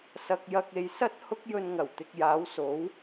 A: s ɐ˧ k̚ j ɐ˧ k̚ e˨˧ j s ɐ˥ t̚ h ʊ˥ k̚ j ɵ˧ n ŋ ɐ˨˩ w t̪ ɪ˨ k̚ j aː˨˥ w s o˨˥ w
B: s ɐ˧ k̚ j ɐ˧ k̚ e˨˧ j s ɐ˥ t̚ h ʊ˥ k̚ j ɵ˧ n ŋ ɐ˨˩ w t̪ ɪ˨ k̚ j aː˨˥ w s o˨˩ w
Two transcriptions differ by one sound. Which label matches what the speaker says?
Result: A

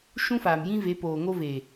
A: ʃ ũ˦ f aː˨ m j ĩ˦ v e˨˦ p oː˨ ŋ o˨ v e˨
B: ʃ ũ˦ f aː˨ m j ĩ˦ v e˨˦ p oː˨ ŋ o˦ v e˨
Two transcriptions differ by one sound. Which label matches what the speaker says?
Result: B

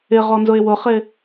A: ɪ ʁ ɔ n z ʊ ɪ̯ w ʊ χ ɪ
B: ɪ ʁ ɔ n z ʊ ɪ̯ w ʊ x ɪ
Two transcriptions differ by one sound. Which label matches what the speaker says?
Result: A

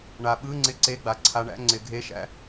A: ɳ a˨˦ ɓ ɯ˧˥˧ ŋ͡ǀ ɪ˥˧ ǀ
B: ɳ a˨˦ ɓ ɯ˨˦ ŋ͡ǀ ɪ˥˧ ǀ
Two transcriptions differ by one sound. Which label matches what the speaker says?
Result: A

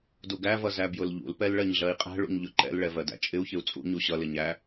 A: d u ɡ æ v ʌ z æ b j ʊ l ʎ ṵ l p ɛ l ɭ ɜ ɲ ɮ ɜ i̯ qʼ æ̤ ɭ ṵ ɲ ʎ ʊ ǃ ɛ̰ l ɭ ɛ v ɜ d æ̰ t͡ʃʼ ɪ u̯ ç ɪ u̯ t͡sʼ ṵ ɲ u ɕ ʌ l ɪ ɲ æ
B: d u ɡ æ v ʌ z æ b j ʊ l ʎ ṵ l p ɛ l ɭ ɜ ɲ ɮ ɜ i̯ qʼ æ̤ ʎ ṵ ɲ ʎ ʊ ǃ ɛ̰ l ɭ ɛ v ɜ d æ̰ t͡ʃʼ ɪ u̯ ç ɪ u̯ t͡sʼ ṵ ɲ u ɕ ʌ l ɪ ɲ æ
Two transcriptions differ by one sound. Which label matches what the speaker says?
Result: A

